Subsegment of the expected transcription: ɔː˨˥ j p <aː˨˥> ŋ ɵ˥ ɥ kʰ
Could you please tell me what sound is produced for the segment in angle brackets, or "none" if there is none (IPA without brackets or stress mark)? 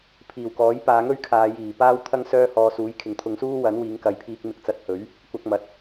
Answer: aː˨˧